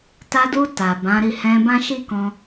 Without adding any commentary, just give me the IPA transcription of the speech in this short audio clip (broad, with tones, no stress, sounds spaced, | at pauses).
t a˧ d u˧ t a˨ b ã˨˦ ɾ i˦˨ h ɛ̃˧ b ã˦ ʃ i˦ k ɔ̃˧